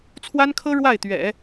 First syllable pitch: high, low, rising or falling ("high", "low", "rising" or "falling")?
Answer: high